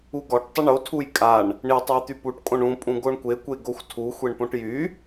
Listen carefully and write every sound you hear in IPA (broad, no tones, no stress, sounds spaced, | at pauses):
u ɡ ɔ ʈ tˤ ə ɳ o tʰ u j kʼ a ɳ | ɳ i tˤ e j t̪ y p u ʈ kʼ õ ɳ ũ pʼ ũ ɡ o ɳ kʷ e kʷ e ɡ o xʷ tʰ u xʷ e ɳ p õ ʈ j y